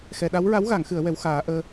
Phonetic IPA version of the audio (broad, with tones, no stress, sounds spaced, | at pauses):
x ɛ˨˩˨ ɗ a˧˥ w ɹ a˧˥ w ɣ a˨˩˨ ŋ x ɨ˨˩˨ ə̯ w ɛ˧˥ w x aː˨˩˦ ʔ əː˧